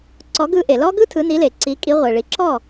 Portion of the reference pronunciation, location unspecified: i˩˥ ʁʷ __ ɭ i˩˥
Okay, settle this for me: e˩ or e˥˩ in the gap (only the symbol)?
e˩